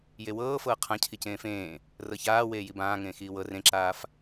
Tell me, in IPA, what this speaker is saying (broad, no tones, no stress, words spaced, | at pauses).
jewɤː fɤːqʰã cʰicẽːfẽː | rɤçaː weːjibãːŋẽː xiːwɤ rẽǁaːf